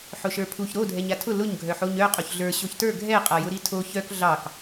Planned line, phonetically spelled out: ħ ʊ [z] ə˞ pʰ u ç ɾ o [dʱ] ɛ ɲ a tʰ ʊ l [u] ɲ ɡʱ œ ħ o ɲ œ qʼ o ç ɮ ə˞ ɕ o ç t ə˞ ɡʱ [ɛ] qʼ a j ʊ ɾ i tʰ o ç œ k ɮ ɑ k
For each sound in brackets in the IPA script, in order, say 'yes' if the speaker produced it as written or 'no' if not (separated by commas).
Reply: no, yes, no, yes